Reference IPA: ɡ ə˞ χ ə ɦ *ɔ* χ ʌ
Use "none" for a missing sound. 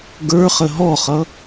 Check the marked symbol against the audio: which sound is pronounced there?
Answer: ɔ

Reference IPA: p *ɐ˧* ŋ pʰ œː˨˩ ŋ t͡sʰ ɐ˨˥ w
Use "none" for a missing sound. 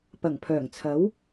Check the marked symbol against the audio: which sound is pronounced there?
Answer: ɐ˨˩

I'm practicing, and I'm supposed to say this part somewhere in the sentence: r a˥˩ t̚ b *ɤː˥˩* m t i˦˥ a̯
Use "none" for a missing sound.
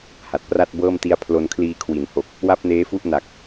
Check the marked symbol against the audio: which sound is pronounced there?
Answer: ɤː˥˩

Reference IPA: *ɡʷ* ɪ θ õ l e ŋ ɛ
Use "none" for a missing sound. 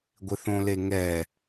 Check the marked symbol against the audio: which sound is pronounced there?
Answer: ɡʷ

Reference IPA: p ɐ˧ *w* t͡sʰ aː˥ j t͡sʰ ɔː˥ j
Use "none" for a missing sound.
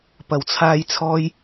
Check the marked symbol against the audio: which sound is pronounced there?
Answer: w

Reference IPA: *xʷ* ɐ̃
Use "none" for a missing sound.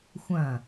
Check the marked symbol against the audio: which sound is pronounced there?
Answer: xʷ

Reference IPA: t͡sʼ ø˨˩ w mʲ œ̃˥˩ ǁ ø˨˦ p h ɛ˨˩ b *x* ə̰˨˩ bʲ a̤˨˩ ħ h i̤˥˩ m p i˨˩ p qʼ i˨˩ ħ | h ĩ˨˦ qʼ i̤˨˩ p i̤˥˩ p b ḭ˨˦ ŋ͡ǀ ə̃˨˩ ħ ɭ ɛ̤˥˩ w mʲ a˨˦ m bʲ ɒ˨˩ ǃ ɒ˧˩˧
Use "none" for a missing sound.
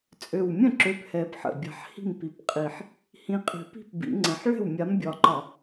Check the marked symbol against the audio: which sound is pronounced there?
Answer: ħ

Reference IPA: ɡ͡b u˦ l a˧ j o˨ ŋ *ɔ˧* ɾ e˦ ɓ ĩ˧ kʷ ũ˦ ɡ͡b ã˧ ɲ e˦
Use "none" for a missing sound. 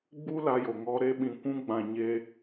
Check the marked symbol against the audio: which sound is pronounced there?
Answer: ɔ˧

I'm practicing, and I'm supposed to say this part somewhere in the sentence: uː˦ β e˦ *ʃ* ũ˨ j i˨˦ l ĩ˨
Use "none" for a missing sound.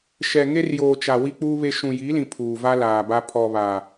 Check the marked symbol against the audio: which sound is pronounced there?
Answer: ʃ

